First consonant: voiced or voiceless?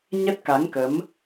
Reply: voiced